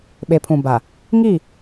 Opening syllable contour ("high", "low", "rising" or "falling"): low